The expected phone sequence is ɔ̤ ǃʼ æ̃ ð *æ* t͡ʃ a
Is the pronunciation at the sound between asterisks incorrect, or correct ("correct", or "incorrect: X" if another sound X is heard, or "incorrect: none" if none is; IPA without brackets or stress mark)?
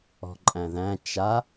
incorrect: æ̃